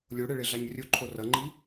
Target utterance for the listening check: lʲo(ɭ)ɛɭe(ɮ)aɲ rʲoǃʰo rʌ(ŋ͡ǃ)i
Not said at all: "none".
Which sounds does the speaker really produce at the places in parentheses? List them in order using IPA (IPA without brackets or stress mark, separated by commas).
ɽ, ɮ, ŋ͡ǃ